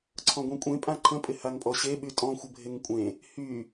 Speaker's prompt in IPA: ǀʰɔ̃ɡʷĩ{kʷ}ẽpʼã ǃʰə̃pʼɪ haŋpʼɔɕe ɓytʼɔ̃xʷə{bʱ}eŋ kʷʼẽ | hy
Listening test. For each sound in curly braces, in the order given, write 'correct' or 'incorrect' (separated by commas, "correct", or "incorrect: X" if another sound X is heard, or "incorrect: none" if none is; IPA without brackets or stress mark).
incorrect: kʷʼ, correct